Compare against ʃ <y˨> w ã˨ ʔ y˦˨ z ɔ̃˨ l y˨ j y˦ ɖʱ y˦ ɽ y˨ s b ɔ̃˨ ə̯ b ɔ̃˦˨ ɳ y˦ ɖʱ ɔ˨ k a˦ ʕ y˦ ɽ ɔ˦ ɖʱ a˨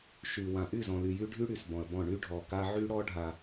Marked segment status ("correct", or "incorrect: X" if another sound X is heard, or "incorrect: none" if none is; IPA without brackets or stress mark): correct